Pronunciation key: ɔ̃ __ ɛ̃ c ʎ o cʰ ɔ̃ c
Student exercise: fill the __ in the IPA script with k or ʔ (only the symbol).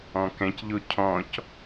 k